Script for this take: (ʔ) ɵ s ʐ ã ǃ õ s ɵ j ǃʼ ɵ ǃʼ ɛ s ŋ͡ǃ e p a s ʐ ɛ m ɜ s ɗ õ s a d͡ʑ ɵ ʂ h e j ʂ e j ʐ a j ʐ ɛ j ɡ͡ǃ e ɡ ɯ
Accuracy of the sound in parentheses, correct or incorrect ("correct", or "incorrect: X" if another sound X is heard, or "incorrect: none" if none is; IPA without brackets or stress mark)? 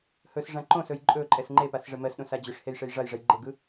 incorrect: h